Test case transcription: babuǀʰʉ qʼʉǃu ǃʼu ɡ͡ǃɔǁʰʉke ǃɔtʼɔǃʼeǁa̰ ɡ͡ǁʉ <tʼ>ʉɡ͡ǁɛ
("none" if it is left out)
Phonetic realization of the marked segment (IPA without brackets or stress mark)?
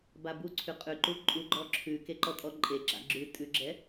tʼ